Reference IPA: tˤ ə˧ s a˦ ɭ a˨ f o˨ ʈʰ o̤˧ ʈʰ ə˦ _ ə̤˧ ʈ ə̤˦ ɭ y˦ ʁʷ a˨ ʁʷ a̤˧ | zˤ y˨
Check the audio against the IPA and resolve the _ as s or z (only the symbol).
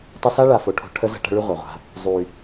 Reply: z